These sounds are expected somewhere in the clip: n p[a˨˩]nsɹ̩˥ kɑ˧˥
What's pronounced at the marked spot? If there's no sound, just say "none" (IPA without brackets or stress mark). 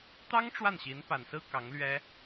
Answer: a˨˩